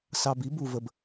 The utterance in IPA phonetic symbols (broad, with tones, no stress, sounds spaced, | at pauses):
s ɑ˧ b i˨˥ b u˧ v ə˧ b